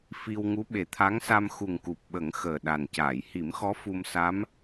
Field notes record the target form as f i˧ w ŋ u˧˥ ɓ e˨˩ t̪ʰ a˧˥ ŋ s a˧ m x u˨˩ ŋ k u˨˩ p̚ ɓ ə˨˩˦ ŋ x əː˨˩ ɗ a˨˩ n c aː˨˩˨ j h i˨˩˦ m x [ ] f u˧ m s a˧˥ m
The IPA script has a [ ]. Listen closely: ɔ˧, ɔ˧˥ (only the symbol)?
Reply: ɔ˧˥